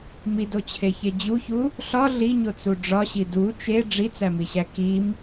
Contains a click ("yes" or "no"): no